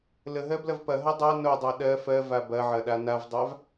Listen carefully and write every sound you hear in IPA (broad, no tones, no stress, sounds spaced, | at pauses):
l ə ɦ ɜ b l ɐ v p ɐ ɦ ɐ dˤ a n o dˤ a ɗ ɜ f ɜ v a b ɐ ʕ ɐ ɗ a n a v dˤ a v